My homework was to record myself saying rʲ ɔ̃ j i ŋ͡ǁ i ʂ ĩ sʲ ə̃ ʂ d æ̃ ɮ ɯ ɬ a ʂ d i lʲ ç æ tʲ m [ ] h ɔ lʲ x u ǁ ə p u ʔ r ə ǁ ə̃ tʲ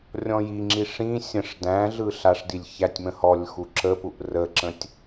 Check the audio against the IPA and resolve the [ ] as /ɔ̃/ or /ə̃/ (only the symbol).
ə̃